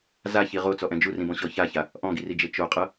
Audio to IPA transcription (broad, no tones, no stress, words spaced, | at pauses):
zaçi ʁot͡sɔʔɛ̃ d͡ʒurĩbɔ̃ɕɔ çaça | ʔɔ̃ɡirid͡ʒe t͡ʃoqʼɤ